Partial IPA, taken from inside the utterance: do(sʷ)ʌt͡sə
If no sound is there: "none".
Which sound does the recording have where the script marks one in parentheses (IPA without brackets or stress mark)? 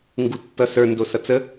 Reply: s